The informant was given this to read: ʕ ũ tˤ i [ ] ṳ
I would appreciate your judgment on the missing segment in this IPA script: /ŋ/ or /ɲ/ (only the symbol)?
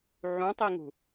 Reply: ŋ